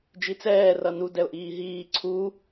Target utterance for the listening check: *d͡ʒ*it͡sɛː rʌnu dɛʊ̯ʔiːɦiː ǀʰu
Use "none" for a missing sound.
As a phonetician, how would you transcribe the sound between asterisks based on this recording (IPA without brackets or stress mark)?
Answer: d͡ʒ